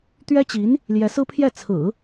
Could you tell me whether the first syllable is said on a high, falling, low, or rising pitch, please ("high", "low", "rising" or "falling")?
high